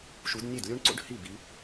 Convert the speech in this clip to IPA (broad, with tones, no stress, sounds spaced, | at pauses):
ʃ u˨˦ d nʲ e˥˩ d lʲ u˥ ɳ ǀ o̰˥ ɖ h i˥˩ b i˨˦